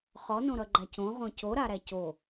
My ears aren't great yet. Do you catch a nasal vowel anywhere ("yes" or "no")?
yes